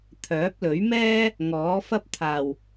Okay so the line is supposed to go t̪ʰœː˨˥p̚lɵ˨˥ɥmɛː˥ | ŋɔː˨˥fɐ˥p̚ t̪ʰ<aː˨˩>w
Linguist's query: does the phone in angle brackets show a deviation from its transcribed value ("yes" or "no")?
no